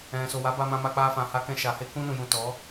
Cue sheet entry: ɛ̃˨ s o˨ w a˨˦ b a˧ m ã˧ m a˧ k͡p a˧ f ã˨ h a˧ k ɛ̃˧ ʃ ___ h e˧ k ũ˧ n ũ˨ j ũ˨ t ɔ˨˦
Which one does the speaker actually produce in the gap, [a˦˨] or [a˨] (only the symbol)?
a˨